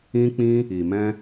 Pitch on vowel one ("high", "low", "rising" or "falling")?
high